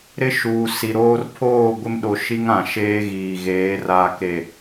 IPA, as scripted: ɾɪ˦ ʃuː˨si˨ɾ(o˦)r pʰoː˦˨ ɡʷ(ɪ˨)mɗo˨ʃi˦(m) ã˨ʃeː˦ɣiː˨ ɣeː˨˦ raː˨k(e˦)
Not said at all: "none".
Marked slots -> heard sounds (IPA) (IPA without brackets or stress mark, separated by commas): oː˦, ɪ˦, ŋ, e˨